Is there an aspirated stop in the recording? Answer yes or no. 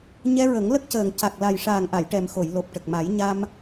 no